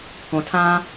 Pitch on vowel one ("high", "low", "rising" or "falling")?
low